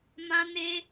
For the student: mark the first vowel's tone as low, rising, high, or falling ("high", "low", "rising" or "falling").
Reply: high